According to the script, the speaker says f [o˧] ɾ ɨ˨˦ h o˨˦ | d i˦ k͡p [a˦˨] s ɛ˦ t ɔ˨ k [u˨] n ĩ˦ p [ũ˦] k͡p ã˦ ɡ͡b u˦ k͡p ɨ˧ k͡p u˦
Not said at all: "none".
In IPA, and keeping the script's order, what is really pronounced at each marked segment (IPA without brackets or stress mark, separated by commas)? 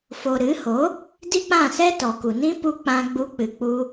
o˧, ã˦˨, u˨, u˦